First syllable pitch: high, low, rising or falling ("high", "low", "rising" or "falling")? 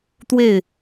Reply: falling